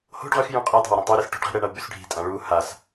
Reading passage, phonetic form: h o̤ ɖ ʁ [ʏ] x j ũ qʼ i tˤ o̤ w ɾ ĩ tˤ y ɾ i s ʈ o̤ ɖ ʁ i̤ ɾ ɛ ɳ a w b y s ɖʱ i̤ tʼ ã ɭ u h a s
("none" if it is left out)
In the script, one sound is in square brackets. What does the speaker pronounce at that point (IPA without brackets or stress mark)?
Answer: ʏ